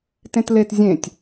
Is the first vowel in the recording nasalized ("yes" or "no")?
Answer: yes